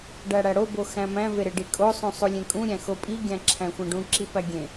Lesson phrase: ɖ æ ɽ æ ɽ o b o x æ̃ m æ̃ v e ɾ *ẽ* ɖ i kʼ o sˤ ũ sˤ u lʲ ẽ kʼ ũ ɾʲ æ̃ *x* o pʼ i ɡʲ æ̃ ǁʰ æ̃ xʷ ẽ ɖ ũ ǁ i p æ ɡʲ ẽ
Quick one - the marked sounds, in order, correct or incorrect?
incorrect, correct

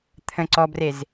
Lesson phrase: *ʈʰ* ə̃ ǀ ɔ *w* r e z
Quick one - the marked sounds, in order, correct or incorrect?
incorrect, incorrect

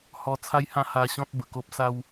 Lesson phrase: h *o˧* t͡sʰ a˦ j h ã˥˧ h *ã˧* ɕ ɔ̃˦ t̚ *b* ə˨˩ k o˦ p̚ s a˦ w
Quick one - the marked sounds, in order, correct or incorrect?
incorrect, incorrect, correct

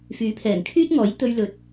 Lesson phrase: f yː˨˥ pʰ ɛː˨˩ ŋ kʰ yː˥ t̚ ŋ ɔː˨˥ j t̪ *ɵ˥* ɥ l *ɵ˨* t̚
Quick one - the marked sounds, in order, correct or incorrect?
incorrect, correct

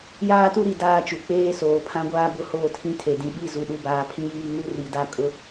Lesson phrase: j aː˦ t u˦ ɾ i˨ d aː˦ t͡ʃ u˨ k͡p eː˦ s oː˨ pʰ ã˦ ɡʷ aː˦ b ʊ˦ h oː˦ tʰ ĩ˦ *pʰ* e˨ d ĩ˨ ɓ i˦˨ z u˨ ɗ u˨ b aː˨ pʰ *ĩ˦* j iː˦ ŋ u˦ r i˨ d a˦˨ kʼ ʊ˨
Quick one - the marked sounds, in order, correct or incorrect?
incorrect, correct

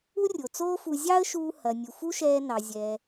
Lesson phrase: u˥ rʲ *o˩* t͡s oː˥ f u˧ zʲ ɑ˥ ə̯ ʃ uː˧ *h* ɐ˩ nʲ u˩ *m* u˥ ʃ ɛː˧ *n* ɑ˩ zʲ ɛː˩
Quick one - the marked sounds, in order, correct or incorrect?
correct, correct, incorrect, correct

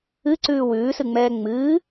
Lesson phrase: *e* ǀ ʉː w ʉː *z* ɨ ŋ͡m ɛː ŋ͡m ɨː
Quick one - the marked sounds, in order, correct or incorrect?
incorrect, incorrect

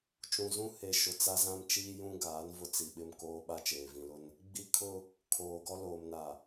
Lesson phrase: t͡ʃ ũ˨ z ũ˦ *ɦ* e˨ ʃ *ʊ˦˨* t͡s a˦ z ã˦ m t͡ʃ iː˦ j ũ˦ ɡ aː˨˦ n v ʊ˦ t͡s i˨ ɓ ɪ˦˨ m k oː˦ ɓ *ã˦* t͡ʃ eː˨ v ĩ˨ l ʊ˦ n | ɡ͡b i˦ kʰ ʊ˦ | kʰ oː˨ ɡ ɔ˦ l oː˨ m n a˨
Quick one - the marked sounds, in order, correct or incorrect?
incorrect, incorrect, incorrect

